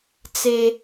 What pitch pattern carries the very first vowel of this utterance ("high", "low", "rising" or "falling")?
high